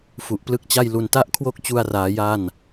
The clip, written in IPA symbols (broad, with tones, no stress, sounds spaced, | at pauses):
f u˨˩ ʔ p l ɯ˥˩ k̚ t͡ɕ a˥˩ j l u˧ n t a˥˩ ʔ kʰ w o˥˩ k̚ t͡ɕ u˧ a̯ r aː˩˦ j a˥˩ n